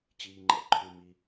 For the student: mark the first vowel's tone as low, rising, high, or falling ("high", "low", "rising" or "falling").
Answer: low